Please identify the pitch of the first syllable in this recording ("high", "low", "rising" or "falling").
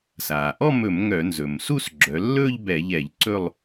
low